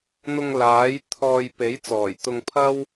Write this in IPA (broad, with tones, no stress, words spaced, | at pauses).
n̪ʊ˧ŋlaː˨˥j t̪ʰɔː˧j pe˨˥jt͡sɔː˨˩j t̪ʊ˧ŋpʰɐ˥w